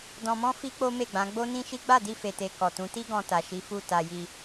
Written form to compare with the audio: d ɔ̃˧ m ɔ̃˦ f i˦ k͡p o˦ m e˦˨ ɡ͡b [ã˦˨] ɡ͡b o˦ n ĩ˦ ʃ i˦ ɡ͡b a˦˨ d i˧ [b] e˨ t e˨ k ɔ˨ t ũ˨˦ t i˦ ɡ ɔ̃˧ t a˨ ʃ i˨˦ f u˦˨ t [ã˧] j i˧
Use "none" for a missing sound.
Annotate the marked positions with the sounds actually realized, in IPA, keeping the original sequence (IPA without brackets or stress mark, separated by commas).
ã˨˦, f, a˧